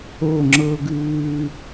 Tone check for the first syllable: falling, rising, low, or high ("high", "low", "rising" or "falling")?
falling